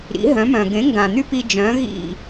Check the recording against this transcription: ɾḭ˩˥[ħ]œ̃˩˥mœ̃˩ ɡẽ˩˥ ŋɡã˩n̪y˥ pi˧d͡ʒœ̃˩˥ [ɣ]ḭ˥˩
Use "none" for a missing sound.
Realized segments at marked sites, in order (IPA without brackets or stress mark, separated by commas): ɦ, ɣ